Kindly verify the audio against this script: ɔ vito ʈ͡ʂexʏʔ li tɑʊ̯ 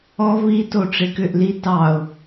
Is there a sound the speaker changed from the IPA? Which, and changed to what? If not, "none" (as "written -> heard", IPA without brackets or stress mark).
x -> k